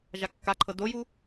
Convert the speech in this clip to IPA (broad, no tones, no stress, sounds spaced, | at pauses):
ʒ a kː a ǃʰ ɤ d o j u